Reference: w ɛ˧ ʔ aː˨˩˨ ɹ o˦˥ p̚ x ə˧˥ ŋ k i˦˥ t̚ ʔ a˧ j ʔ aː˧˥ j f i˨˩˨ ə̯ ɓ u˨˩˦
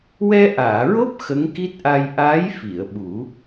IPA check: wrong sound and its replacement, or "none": none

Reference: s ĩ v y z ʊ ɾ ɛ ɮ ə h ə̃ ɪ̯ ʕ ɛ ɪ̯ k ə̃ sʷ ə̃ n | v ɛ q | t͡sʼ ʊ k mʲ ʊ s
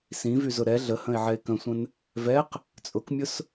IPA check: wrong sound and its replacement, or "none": none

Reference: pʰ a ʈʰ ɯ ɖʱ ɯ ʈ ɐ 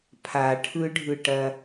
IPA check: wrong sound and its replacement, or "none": none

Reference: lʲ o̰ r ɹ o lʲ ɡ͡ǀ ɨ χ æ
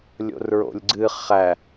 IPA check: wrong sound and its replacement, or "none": o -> o̰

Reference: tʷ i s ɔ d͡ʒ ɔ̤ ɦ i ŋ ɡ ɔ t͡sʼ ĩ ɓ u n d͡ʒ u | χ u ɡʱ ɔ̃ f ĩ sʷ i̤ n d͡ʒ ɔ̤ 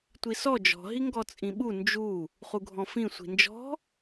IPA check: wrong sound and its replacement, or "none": none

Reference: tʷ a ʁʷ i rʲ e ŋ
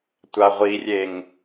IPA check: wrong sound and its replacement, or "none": none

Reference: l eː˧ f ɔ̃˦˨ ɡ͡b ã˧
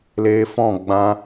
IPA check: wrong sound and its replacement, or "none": none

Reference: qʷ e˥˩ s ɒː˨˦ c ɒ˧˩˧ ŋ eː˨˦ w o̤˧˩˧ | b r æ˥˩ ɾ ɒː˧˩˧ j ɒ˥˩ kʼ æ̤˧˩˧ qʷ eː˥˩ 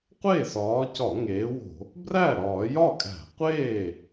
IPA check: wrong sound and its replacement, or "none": none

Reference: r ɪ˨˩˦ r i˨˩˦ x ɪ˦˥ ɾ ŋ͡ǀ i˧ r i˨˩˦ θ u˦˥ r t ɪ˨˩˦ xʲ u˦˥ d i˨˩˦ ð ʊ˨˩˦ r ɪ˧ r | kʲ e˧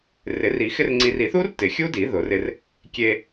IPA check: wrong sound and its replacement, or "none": ɾ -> r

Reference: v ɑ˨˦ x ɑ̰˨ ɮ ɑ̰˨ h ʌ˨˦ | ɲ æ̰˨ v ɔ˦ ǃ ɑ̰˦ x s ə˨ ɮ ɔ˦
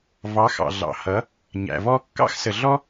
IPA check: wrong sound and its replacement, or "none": ǃ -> kː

